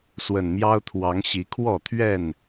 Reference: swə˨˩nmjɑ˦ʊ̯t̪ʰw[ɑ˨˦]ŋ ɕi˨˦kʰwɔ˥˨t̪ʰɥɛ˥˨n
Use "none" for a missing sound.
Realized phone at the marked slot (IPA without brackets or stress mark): ɑ˨˦